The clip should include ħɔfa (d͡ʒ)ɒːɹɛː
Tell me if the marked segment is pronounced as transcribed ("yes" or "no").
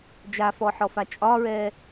no